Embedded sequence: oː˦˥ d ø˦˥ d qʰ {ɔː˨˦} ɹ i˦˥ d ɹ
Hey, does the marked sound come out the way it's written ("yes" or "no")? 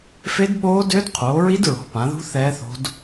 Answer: no